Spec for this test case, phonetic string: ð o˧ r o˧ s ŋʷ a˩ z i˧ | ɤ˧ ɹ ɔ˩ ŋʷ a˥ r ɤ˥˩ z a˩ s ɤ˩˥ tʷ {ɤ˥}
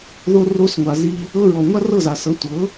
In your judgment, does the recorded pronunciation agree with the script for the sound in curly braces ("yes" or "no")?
no